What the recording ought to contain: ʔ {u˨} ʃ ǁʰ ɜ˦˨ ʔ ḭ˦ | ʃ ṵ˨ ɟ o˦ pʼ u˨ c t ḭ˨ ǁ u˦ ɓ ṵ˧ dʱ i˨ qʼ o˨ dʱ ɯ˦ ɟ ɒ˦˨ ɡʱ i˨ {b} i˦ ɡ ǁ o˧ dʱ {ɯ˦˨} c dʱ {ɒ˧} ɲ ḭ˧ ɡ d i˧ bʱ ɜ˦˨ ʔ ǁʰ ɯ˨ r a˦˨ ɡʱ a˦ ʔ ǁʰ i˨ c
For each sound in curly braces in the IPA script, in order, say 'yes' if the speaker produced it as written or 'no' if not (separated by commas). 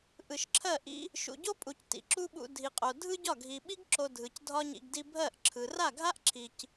no, no, no, no